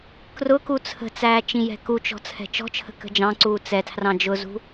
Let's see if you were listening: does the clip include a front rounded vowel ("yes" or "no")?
no